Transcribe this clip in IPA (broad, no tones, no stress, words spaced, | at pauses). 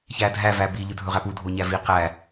çædʱæ væbi ʎɵdʱɵʁæpu dʱoɲævi qæ